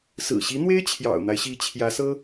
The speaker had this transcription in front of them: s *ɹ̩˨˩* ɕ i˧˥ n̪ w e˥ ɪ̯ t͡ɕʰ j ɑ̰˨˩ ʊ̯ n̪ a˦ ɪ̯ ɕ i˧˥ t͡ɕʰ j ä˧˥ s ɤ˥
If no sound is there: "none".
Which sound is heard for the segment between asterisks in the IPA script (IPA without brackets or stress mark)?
ɹ̩˨˩